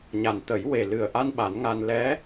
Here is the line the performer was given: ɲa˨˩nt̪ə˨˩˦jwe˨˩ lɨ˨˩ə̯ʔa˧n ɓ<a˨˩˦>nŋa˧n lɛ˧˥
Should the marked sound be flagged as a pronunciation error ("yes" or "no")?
no